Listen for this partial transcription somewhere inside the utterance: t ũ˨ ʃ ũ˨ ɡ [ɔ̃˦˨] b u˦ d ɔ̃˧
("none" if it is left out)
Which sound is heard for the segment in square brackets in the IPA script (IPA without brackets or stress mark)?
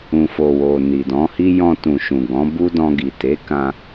ɔ̃˨˦